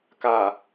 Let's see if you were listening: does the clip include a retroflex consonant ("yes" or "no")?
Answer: no